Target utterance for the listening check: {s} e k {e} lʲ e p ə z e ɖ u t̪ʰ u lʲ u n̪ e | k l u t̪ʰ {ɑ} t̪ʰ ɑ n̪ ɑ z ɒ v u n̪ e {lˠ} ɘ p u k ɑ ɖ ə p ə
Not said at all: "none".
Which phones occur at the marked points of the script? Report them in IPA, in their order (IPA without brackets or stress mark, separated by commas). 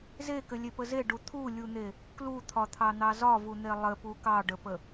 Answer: z, ɘ, ɒ, lˠ